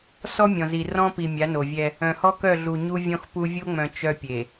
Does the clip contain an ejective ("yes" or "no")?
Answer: no